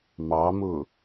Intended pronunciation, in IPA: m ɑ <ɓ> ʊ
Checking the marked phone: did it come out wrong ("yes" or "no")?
yes